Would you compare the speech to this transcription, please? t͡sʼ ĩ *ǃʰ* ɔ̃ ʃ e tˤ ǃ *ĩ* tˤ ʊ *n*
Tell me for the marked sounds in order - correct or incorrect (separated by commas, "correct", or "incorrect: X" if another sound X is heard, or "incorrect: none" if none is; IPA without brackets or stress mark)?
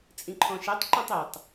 correct, correct, incorrect: tˤ